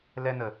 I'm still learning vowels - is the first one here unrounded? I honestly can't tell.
yes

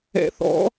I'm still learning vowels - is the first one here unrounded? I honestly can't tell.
yes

